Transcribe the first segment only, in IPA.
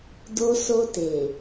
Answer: d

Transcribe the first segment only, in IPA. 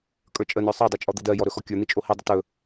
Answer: kʼ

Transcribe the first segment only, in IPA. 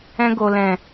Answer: ɛ̃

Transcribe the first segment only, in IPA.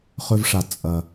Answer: χ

